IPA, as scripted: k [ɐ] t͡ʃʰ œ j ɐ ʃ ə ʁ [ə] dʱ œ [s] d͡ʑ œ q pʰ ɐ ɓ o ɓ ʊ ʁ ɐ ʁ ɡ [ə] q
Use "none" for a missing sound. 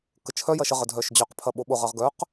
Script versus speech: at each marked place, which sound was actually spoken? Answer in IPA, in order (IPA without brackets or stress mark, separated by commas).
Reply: ə, ə, ʃ, œ